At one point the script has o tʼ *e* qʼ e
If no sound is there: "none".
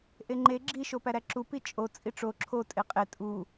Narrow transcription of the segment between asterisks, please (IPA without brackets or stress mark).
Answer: e